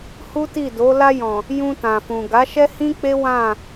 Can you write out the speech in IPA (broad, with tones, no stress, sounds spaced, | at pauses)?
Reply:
h u˦ t i˦˨ d o˨˦ l a˧ j ɔ̃˨ | j ũ˧ t ã˨ f ũ˨ ɡ a˨˦ ʃ ɛ˦ h ĩ˦ k͡p e˦ w ã˦˨